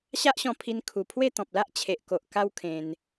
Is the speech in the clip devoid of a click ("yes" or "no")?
yes